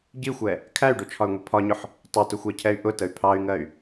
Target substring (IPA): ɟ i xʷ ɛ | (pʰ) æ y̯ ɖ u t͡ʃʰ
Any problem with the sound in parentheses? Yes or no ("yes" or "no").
yes